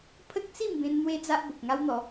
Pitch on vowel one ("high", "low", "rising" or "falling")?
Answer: high